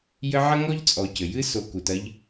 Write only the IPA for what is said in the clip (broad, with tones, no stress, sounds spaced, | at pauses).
j ɘ˦ ʕ ɐ˥ ŋ ɔ˥ ʎ t͡sʼ ɔ˨ c ɘ˩ j ɨ˥ s o˨ k u˩ t ɐ˦ ʎ